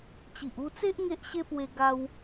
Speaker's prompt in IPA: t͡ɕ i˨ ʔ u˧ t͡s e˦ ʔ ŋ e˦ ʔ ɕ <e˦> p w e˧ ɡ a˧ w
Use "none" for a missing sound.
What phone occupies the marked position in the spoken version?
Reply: e˦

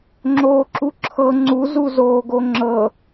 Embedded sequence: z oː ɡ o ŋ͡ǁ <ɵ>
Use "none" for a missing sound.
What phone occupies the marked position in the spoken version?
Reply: ɤ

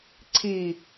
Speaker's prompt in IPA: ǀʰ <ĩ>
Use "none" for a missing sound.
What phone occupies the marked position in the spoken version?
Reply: i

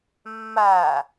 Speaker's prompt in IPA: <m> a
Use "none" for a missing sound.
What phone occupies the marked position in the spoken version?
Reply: mː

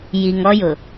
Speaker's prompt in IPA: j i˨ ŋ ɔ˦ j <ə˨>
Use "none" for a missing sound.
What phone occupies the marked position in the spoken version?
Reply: ʊ˨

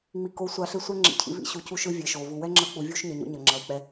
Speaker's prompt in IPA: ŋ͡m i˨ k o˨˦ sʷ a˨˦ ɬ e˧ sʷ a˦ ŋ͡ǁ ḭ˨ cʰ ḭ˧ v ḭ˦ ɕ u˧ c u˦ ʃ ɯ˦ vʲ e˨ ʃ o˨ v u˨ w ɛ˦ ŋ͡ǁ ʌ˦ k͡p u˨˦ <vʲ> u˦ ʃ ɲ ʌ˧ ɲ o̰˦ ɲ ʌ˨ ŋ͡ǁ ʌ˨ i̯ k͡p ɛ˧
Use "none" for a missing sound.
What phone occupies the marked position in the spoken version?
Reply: vʲ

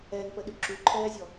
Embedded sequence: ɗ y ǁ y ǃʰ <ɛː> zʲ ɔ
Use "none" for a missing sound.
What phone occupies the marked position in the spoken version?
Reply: ɛː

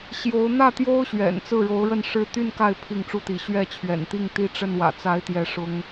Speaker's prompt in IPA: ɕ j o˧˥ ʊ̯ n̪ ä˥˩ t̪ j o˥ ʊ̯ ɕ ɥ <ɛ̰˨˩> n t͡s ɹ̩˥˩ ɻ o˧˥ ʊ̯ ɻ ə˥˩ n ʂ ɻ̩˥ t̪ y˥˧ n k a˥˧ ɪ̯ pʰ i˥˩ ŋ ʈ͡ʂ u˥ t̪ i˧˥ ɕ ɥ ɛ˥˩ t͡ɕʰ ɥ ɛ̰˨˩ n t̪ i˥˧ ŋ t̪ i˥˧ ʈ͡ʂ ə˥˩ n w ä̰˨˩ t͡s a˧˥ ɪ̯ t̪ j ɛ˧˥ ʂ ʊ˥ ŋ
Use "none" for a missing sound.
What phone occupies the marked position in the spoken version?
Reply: ɛ̰˨˩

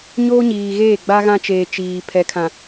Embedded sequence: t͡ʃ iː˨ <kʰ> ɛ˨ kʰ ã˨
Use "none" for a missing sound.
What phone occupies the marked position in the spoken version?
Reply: pʰ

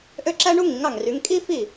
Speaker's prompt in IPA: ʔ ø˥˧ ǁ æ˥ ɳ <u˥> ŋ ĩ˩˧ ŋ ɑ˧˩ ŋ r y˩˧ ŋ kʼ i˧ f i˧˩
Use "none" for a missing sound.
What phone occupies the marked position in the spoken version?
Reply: u˥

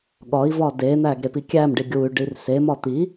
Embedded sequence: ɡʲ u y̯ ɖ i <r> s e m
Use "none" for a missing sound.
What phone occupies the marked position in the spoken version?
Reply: r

